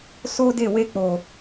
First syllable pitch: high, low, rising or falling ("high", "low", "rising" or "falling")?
high